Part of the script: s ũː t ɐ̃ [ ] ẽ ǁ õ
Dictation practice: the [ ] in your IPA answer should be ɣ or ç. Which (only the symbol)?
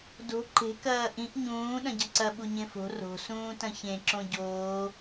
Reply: ç